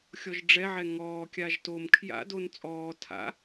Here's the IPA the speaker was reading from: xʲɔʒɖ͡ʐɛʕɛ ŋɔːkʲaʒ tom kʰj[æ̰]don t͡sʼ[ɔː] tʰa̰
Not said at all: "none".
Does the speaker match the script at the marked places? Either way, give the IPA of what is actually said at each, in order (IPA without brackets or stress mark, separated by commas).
a̰, ɔː